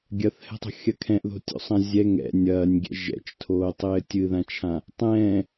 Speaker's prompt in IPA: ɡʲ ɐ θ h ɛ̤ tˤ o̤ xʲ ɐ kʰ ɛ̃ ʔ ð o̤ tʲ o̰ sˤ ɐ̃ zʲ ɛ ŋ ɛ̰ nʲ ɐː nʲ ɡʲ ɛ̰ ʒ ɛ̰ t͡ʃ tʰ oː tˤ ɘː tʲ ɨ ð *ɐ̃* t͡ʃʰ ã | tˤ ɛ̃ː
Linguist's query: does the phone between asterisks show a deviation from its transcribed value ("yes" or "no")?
yes